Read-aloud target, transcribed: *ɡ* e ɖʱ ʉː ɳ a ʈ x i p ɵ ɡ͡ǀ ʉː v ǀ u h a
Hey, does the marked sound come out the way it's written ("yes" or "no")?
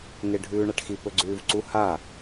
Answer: no